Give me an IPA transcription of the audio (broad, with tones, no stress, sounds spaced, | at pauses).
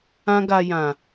ã˦ ɡ a˧ j ã˨